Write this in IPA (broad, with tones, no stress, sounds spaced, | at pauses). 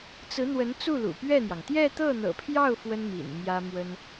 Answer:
t͡s ɹ̩˧˥ n̪ w ə˧˥ n t͡s u˥˩ l ṵ˨˩ p ɥ ɛ˥˩ n̪ j ɑ˩ ŋ t̪ j ɛ˥˧ t̪ ɤ˥˩ n̪ ɤ̰˨˩ pʰ j ɑ˥˩ ʊ̯ f w ə˥ n m ḭ˨˩ n m j ä˥ m w ə˥ n